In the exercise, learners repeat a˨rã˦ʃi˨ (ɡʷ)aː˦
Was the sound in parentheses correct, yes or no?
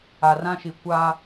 no